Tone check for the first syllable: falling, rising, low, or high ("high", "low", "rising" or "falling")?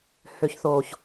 low